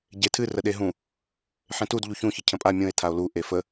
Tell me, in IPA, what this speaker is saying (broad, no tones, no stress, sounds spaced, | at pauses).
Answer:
ɟ e tʰ ɨ r ə ɗ e ɦ ũ | ħ ẽ t u d ʎ u ç ũ ç ə cʰ ə̃ pʼ a mʲ ũ e̯ tʰ a o̯ l u ʔ e f ə